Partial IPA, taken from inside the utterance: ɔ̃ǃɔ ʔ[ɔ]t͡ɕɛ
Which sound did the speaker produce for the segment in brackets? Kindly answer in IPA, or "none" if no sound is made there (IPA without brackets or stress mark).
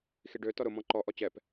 ɔ